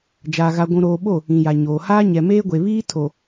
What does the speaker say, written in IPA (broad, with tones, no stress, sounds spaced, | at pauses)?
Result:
d͡ʒ aː˨ ɣ a˨ ɡʷ ũ˨ ɾ oː˨ ɓ o˦˨ | ĩ˨ j a˨ ɲ oː˨ h aː˦ ɲ ɛ˨ m eː˦ ɡʷ e˨ β iː˦ tʰ o˨